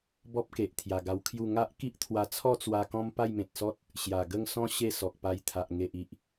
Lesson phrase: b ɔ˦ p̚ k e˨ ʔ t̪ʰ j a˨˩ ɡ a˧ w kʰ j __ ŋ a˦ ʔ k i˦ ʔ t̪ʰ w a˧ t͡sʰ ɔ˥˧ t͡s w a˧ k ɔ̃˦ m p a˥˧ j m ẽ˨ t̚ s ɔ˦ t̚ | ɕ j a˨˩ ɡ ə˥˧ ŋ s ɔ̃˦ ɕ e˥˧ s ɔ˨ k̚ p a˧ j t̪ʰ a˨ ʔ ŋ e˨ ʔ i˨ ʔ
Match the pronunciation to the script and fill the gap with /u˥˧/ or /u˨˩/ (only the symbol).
u˥˧